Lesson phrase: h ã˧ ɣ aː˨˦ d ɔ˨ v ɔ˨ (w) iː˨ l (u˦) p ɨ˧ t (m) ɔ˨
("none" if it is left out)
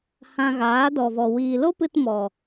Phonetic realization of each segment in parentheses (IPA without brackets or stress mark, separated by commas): w, o˦, m